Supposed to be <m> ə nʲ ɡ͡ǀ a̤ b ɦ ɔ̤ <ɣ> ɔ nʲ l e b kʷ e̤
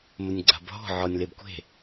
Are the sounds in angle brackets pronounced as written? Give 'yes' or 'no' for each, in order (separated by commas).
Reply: yes, no